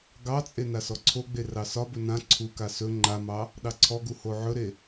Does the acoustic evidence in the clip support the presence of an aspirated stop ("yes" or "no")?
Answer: yes